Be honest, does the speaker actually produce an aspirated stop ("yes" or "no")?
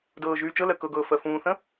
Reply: no